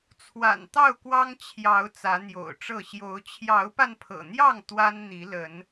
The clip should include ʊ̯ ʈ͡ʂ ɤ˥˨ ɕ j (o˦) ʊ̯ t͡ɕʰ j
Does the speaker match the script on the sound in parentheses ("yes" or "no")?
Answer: no